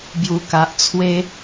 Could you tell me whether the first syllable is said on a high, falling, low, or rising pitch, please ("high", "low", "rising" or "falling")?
low